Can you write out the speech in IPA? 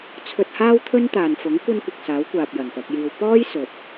t͡sʰ ɵ˧ t̚ h aː˥ w t̪ʰ ɵ˥ n t̪ aː˨ n f ʊ˨˥ ŋ kʷ ɐ˥ n kʷ ɪ˨ k̚ s aː˨˥ w kʷ aː˨ p̚ j ɐ˨˩ n p ɐ˧ k̚ j iː˧ w p ɔː˥ j s ɵ˨ t̚

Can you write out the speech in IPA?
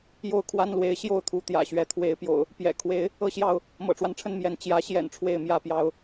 j o˥˨ ʊ̯ kʰ w a˦ n l w e˨˦ ɪ̯ ɕ j o˥˨ ʊ̯ t̪ʰ u˨˦ t̪ j ä̰˨˩ ɕ ɥ ɛ˨˦ t̪ʰ w e˨˦ ɪ̯ p j o̰˨˩ ʊ̯ | p j ɛ̰˨˩ kʰ w e˨˦ ɪ̯ | ɤ˥˨ ɕ j ɑ˥˨ ʊ̯ | m ɤ̰˨˩ ʈ͡ʂ w a˦ n ʈ͡ʂʰ ə˥˨ n m j ɛ˨˦ n t͡ɕ j ä˨˦ ɕ j ɛ̰˨˩ n ʈ͡ʂʰ w e˥˨ ɪ̯ m j ä˥˨ p j ɑ˦ ʊ̯

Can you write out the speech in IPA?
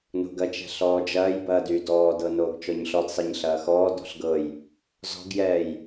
n o̤ ɡ ɐ t͡ʃ ɛ̤ ɬ ɔː d͡ʒ ɐː j b ɐː d y d ɔː d ɤ n oː ɡ t͡ʃ ɔ ɲ ɬ ɔ d sˤ ɛ ɲ ɬ ɐː x ɔː d ɔ̤ ɬ ɡ ɤ j | z ɔ̤ ɡ j ɛː j

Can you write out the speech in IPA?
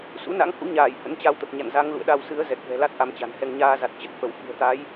s ṵ˧˥ n a̰˧˥ ŋ h ṵ˧˥ ɲ aː˧˩ j h ə̰˧˥ n t͡ɕ a˧ w t̪ ə˨˩ p̚ ɲ a̰˧˨ n z a˨˦ ŋ l ṵ˧˨ ə̯ ɗ a˧ w s ɨ˨˦ ə̯ z ɛ˨˩ k̚ v ɛ̤˨˩ l a˦˥ t̚ ʔ a˧ m t͡ɕ a̤˨˩ n h ɛ˧ ŋ ɲ aː˧ z a˨˩ t̚ t͡ɕ ə˦˥ t̚ f ə˧˩ w f ɨ̤˨˩ ə̯ t̪ a˨˦ j

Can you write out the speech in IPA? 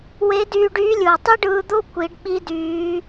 w e˧˥ d yː˧ ɖ yː˧˥ lʲ ɯː˩ tˤ i˥ ɖ ɯː˧ d̪ o˥ kʷ i˩˧ ɖ ɓ i˧˥ d yː˩˧

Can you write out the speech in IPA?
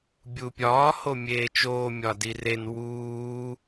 bʲ u pʲ ɒː h o mʲ eː t͡ʃ oː mʲ ɒ d i r e n w uː

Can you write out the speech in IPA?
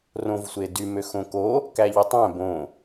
r õ v sʷ e d y m ø x õ k o | k æ ʎ i tˤ æ̃ b õ

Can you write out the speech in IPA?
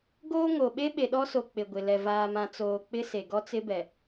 ɡ oː˦ ŋ o˨ ɓ e˦ ɓ e˨ ɗ ɔ˦ s o˨ k͡p ɪ˨ ɡʷ ɪ˨ l ɛ˨ v aː˨ m ã˨ t͡s oː˨ k͡p ɪ˦ s e˨ ɡ ɔ˦ t͡s ɪ˦ b ɛ˨

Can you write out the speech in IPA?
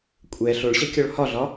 kʷʼ ɛ ɬ o ɭ ɕ ɐ kʲ ɔ ɭ h ɒ ɮ ɒ

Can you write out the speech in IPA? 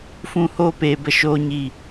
f ũ˦ h oː˦ p eː˧ b ə˦ ʃ oː˦ ɲ i˦˨

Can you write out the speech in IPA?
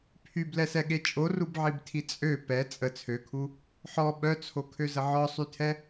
pʰ y b l ɛ s ɛ ɠ e t͡ʃʼ o r u b ʕ i b tʰ i t͡sʼ ø p ɛ t͡sʼ ə t͡sʰ ø kʰ u | ħ ɔ ɓ œ t͡sʰ o kʰ ø z ə ʕ ɔ sˤ y tʰ ɛ

